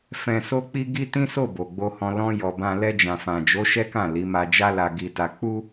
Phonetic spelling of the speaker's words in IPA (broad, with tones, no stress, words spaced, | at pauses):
fɛ̃˨so˧k͡pi˧ ɡi˦tĩ˦so˦˨ bo˨ɡ͡bo˧hɔ̃˧ lɔ̃˧ jɔ˧bã˦ lɛ˧d͡ʒã˨fã˨d͡ʒo˨˦ ʃɛ˦kã˦˨ li˨˦ma˧d͡ʒa˦la˧ ɡi˧ta˧ k͡pu˦